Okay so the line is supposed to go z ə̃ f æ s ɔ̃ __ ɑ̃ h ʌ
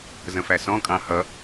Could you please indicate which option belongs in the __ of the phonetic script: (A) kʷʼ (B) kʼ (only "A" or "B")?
B